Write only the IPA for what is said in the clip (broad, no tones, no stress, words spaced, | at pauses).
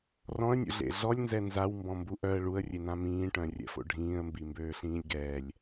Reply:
rɔ̃ə̯nʲṵɮḛ ɮɔlʲnzɛ nzawmbɔ̃mbu ʔœə̯ ɭuə̯rʲenã mĩːʈœ̃rʲɛ̰fo̰ ɖʱĩːə̯mbimbøːɬĩːlʲ ɡɛːlʲ